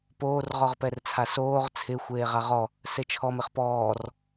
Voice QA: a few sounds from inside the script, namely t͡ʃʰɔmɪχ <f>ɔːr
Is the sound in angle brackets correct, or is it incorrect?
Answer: incorrect